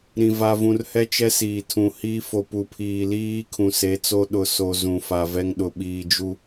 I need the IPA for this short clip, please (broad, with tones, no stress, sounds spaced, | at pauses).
ɾ ĩ˨ v a˨ v ũ˨ r h ɛ˦ t͡ʃ ɛ˦ s iː˨ tʰ ũ˨ h iː˦ f o˨ p u˨ pʰ iː˨ l iː˦ kʰ ũ˨ s e˨˦ t͡s o˦ ɗ ʊ˨ s o˨ z ũ˨ f a˨ v ɛ˦ ŋ ɗ ʊ˨ ɓ iː˨ d͡ʒ u˦